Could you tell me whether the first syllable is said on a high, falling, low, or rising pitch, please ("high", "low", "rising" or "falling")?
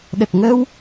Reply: low